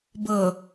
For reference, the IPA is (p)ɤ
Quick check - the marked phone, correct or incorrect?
incorrect